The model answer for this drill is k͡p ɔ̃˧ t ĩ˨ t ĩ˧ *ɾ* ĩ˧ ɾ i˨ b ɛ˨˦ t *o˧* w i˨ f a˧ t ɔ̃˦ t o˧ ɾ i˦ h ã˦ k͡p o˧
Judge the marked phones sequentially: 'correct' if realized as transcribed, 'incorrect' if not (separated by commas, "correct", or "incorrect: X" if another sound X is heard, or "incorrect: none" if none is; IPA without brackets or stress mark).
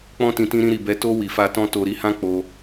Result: correct, correct